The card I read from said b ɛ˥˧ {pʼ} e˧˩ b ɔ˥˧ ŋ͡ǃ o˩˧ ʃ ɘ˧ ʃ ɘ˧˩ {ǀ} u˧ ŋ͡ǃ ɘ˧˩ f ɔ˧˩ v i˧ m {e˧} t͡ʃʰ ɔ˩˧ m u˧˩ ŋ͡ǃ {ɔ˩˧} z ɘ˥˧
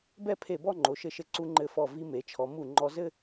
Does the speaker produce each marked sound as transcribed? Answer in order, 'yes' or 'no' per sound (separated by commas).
no, yes, no, no